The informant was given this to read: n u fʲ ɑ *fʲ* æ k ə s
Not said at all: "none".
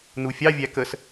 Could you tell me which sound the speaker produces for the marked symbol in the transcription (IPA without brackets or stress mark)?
vʲ